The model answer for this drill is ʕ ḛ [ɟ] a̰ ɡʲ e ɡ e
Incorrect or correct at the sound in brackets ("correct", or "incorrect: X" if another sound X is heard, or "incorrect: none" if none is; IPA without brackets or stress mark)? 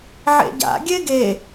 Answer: correct